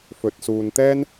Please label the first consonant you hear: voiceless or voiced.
voiceless